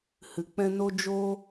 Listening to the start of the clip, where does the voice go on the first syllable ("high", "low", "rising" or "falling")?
low